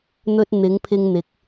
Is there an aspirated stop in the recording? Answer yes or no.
yes